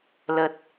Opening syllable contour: low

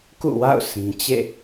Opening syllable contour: falling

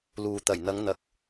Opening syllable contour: low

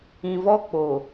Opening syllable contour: low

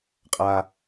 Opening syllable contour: high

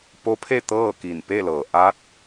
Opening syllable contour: rising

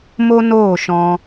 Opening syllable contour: high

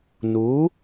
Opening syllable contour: rising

